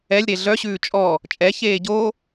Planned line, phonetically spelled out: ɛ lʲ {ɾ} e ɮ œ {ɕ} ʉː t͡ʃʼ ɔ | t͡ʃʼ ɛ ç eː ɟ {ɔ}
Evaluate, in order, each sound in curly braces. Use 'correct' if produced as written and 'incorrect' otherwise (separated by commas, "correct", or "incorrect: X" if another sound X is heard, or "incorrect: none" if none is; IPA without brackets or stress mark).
correct, correct, incorrect: o